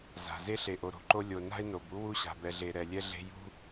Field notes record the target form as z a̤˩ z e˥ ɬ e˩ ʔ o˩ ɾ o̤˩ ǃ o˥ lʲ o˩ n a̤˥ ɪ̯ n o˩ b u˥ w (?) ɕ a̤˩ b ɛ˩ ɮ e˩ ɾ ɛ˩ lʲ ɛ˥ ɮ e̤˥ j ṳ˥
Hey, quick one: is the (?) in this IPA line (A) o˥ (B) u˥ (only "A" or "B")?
B